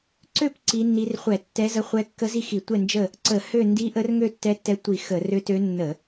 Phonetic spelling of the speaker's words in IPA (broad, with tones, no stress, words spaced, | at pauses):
ǀø˥˨p ǀi˧˥nːi˧˥r χʷɛ˧˩˧tːɛ˧˥zə˧˥ χʷɛ˧˥kːə˧˥zi˥˨xi˧˩˧ tʷɛ˥˨nd͡ʒə˥˨ | ǀə˧˩˧ hø˥˨ ndi˧˥ʔə˧˥r ŋø˥˨tːɛ˧˥tːɛ˧˥ tʷi˧˩˧ xə˧˩˧rø˧˥tø˧˥ nːə˧˩˧